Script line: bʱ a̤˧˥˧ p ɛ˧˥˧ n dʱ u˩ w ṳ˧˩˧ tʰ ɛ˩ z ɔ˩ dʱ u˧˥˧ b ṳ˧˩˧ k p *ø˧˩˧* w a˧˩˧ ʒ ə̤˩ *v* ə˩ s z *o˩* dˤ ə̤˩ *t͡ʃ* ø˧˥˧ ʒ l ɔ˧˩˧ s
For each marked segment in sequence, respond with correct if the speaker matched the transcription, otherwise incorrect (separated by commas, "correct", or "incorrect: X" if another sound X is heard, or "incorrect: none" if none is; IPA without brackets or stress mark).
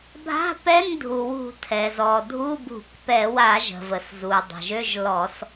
incorrect: ɛ˧˩˧, correct, incorrect: u˩, incorrect: ʒ